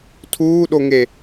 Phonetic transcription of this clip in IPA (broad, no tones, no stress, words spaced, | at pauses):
tʰuːɗoŋe